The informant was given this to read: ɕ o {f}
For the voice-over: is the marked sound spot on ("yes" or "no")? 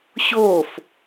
yes